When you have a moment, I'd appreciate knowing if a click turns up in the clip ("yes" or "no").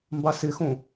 no